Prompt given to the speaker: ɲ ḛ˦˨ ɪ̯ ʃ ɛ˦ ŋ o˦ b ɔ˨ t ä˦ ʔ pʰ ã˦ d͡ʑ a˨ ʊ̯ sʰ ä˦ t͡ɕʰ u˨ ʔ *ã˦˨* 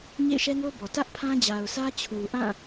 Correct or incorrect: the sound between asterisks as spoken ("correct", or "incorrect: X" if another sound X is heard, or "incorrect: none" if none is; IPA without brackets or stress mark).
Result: correct